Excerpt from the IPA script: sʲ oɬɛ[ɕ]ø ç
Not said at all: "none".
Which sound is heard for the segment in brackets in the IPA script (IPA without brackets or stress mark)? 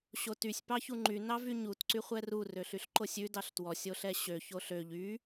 ɕ